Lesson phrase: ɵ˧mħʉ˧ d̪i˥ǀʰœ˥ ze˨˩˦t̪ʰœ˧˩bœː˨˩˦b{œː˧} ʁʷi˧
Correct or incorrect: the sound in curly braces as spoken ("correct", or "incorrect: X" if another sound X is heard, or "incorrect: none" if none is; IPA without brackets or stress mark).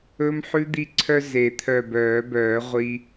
incorrect: œː˨˩˦